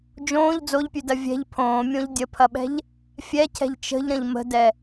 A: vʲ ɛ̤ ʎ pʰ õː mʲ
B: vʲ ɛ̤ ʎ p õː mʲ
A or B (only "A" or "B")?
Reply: A